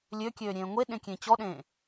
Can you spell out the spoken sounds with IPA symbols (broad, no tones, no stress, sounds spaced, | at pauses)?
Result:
lʲ ø kʲ øː ɾʲ ẽː ŋʷ e ɗ ẽ kʲ ẽ t͡ɕ ɔ ɗ ẽː